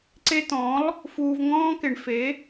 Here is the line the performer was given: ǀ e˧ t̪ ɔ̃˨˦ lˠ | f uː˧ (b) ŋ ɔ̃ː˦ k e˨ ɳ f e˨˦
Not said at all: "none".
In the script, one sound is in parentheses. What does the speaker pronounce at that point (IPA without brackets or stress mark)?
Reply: v